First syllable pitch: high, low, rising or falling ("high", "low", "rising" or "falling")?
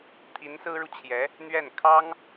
rising